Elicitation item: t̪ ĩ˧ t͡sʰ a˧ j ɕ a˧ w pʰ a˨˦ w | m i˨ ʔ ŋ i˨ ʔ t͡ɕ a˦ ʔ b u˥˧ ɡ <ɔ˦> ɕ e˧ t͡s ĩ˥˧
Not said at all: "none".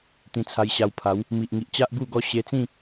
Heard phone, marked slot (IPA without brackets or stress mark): ɔ˦